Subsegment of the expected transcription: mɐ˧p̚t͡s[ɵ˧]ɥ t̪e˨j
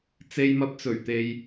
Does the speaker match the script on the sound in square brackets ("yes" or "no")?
no